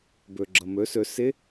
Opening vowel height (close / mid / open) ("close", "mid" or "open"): mid